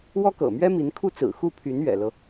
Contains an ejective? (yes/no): no